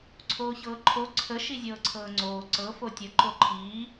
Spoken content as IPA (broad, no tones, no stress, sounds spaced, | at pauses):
ǀʰ oː ç ɤː ǃʰ o ǀʰ ə ʃ i zʲ ɤː ǀʰ ɤː ŋ͡ǀ oː ǀ ɤ f o tʲ ə ǃ o ǃʰ iː